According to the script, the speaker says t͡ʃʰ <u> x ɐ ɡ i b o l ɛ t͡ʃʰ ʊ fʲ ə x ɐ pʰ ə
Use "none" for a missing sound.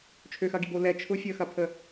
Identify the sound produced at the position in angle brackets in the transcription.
ø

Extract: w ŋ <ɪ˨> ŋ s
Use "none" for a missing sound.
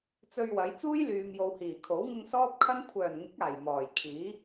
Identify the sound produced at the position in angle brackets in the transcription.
ɪ˧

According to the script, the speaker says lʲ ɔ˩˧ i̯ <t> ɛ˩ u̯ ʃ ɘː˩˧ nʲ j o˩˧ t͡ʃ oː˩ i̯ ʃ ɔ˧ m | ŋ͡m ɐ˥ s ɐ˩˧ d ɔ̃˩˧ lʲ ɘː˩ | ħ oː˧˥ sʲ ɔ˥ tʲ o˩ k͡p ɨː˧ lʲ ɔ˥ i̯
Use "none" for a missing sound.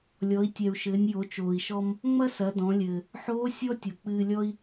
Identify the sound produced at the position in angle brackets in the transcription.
tʲ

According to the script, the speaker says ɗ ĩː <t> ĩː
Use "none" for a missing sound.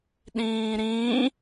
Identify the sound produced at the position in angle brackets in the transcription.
ɾ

